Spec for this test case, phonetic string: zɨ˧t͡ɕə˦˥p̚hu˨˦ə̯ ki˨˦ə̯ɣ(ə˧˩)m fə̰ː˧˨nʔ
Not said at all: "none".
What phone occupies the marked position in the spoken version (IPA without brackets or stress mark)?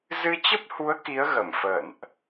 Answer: ə˧˩